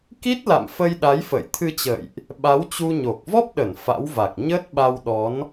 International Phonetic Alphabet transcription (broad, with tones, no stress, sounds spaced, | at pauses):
k i˦˥ t̚ l a̰˧˨ m f ə˧ j ɗ a˨˦ j f ə̰ː˧˨ j t̪ʰ ɨ˧ t͡ɕ ə̰ː˧˨ j ʔ | ɓ a˨˦ w t͡ɕ u˧ ɲ o˨˩ k̚ v ɔ˦˥ p̚ ɗ ə˧˩ n f a̰˧˥ w v a˨˩ k̚ ɲ əː˦˥ t̚ ɓ a˧ w ɗ ɔ˨˦ n